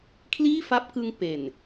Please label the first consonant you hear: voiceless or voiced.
voiceless